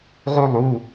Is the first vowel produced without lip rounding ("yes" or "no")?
no